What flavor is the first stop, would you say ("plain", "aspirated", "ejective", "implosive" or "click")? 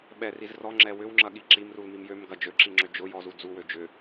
implosive